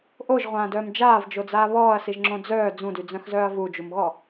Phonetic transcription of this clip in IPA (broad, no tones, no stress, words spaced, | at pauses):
ʔoʒʁʷãːdœːm d͡ʒaːvd͡ʒod͡zaː βɔːɐ̯siʒŋ͡ǁõ d͡zœː d͡zũdyd͡zœ̃xzœːɐ̯ vud͡ʒumɣɔ